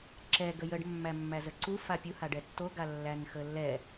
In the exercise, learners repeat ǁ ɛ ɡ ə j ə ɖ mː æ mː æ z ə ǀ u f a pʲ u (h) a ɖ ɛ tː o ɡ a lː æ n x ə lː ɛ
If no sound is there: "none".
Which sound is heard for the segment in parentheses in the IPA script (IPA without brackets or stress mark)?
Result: h